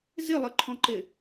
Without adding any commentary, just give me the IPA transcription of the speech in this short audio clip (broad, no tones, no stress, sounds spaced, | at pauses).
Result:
z ɪ lˠ ɘ ǃʰ ɔ̃ ǃ ɪ